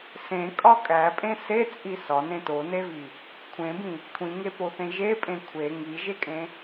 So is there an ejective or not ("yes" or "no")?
yes